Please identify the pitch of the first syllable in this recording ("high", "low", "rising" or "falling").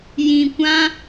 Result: low